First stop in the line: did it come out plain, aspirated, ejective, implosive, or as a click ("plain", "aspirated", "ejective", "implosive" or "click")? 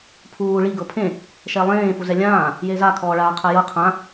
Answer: aspirated